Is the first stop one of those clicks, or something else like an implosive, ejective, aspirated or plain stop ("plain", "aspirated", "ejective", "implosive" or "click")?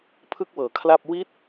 aspirated